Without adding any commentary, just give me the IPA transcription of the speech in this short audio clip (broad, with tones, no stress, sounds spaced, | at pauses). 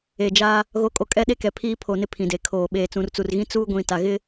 e˨ d͡ʒ a˦ | ɣ o˨˦ kʼ o˨ kʼ ɛ˦ ɗ e˦ k ɛ˨ pʰ iː˦ pʰ o˨ n ɪ˦ pʰ ĩ˨ d e˨ kʰ oː˨ ɓ eː˨ t͡s ũ˨ r t͡s u˨ r ɣ ĩ˦ t͡s uː˦ ɡʷ ĩ˨ t a˨ ɣ ɪ˦